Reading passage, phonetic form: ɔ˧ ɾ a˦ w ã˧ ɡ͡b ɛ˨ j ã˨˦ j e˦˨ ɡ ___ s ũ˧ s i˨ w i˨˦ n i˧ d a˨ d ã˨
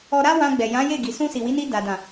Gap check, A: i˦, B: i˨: B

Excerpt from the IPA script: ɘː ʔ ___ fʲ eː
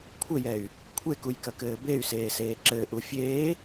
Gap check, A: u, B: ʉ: A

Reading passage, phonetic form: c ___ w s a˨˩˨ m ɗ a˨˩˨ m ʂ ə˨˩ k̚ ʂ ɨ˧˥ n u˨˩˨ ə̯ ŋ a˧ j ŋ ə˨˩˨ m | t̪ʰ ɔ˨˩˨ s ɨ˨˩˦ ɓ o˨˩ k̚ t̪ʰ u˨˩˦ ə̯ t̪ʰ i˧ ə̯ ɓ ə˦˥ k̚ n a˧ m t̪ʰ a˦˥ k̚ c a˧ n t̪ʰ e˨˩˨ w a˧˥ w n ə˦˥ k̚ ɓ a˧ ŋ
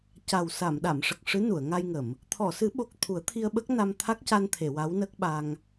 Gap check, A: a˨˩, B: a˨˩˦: A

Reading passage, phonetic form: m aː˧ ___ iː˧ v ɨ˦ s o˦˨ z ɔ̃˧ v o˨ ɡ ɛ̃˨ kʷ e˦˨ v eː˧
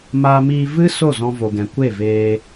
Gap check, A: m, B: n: A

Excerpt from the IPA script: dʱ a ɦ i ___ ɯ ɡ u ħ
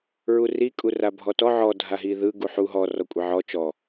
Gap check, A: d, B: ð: B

